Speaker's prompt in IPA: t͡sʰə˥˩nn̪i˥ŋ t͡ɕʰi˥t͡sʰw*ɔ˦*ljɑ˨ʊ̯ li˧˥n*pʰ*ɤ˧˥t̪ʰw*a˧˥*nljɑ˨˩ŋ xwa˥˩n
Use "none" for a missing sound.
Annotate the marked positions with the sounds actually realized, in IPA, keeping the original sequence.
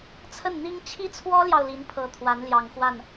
ɔ˥, pʰ, a˧˥

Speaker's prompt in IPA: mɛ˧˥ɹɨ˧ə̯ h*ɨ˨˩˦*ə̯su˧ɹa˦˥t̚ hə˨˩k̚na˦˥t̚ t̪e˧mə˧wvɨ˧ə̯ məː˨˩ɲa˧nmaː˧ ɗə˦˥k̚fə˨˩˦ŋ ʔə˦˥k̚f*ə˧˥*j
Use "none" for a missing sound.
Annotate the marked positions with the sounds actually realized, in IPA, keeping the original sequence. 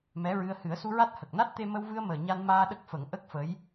ɨ˨˩˦, ə˧˥

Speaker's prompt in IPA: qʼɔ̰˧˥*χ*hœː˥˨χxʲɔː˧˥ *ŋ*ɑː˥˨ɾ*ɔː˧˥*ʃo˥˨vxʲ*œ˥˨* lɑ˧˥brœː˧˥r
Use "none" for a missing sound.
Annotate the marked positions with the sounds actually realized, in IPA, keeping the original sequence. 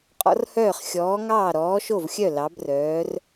r, ŋ, ɔː˧˥, œ˥˨

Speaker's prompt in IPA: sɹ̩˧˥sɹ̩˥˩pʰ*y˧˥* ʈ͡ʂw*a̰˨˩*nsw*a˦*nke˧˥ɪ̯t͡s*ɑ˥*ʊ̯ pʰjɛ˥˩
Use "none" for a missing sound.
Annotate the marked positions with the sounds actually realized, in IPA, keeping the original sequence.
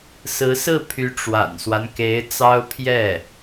y˧˥, a̰˨˩, a˦, ɑ˥

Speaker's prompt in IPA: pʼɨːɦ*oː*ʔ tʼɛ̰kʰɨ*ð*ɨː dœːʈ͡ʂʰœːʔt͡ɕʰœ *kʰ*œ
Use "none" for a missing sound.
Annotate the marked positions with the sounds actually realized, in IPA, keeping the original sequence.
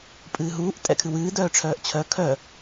uː, w, kʰ

